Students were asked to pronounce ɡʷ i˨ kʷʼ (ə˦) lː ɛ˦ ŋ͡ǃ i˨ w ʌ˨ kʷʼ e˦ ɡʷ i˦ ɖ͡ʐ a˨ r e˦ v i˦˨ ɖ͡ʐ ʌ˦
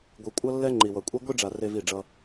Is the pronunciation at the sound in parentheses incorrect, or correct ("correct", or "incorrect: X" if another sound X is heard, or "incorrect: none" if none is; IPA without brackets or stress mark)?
incorrect: ʌ˦